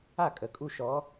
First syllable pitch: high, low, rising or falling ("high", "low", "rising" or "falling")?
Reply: falling